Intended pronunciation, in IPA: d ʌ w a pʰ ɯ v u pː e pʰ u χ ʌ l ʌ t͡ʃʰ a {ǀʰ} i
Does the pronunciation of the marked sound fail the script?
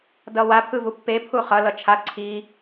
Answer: no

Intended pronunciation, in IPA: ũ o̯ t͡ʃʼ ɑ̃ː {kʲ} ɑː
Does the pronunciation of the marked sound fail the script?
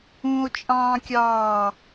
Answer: no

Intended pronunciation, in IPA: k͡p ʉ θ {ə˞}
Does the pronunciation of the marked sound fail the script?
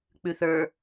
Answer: no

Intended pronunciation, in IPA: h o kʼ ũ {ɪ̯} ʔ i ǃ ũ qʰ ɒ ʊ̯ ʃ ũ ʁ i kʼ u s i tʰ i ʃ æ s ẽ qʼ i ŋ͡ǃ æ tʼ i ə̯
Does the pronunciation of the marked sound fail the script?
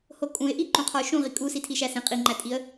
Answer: no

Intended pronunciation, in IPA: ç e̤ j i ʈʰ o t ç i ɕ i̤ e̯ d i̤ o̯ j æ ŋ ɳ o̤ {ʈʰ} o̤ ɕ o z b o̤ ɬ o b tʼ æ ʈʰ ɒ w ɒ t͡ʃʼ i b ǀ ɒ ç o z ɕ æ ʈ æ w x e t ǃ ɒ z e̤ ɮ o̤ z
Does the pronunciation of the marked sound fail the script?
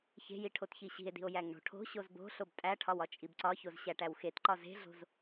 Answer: no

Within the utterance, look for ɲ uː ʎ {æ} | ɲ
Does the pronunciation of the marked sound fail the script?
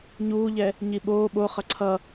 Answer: yes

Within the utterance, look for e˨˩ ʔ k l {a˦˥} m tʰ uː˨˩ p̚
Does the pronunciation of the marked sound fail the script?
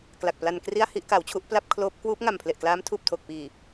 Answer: yes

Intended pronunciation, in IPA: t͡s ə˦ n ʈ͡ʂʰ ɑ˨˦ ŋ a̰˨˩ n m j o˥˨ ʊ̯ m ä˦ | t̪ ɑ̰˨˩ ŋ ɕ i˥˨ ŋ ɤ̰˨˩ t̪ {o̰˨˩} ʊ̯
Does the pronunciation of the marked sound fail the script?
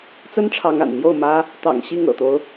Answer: yes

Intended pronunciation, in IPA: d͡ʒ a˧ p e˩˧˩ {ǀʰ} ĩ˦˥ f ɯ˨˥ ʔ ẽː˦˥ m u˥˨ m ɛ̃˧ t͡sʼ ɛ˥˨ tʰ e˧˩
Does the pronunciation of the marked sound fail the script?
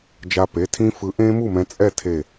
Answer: yes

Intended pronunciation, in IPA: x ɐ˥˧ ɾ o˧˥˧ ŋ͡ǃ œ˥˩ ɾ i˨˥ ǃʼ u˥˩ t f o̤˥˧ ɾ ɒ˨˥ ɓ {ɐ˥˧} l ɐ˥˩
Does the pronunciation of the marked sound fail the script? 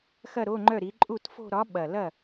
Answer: yes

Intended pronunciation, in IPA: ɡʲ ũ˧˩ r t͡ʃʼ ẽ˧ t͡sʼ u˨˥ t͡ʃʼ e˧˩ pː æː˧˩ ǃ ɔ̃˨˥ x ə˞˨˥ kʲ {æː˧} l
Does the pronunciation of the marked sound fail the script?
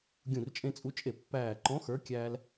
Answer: no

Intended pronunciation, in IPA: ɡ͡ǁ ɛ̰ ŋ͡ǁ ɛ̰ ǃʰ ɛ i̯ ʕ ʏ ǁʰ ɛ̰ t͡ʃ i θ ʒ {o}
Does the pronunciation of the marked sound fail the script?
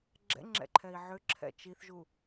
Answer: yes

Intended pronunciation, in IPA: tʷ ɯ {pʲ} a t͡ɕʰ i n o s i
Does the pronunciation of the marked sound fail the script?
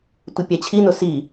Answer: no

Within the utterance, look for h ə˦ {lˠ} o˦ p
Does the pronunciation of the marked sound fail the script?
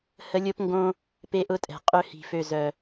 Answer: yes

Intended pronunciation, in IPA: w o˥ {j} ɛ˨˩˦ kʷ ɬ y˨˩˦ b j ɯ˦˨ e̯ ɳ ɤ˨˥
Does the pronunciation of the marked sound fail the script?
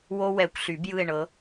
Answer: yes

